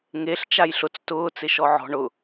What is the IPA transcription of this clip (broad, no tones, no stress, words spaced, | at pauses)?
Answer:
ŋeɬ t͡ʃajɬʊt͡s tʊː t͡sɪʃɔʕɔ̤ ɳʊ